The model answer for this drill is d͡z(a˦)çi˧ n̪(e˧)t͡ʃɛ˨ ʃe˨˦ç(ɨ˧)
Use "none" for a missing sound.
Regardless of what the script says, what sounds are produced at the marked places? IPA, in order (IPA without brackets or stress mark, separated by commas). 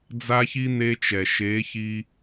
a˧, e˧, i˧